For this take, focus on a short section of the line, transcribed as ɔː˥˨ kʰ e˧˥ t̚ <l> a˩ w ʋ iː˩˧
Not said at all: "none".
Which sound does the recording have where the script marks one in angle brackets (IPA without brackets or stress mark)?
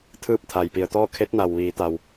n